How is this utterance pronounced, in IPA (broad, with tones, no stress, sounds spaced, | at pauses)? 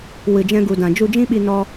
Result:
w ɨ˨ d͡ʒ ɛ̃˧ ɡ u˨ d ã˨ d͡ʒ u˧ d͡ʒ ĩ˦ ɓ i˧ n ɔ˧